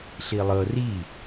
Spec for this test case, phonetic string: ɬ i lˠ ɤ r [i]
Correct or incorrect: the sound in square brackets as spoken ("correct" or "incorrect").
correct